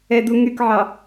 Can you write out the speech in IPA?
ɛduŋykʕɑ

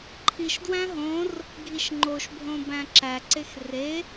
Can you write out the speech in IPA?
ǃʰiʃdwæ̃ ɦõr | ɡʱiʃŋ͡ǃoʃbʱõ bæ̃ǁæǀex re

